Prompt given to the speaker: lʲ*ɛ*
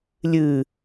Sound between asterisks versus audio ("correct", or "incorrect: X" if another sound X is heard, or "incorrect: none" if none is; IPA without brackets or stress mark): incorrect: ɨ